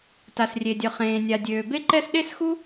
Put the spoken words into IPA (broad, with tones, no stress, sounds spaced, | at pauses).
t a˩ s rʲ e˩ dʲ œ˩ χ ẽː˩ nʲ a˩ dʲ øː˩ b e˥ ǃ ɛ˥ s ɗ e˥ s x u˥